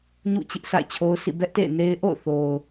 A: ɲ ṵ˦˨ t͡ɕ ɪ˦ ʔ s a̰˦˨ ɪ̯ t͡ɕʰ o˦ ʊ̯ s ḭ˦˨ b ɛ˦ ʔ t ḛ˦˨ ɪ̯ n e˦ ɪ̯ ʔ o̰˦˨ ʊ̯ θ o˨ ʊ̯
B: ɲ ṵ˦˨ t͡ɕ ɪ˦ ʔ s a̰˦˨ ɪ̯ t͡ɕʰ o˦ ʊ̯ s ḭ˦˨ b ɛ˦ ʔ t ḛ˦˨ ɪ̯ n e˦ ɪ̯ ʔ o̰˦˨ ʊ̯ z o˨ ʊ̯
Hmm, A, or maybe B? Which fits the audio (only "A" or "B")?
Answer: A